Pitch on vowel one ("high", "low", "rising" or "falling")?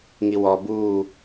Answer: low